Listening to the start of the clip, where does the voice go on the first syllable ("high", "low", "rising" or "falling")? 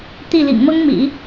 falling